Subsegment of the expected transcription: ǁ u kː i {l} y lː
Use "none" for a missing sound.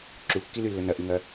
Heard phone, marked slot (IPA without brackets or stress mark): l